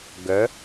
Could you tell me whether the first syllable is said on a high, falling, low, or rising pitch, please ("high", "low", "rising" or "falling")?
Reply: rising